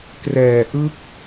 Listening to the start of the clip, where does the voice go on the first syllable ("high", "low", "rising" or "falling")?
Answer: low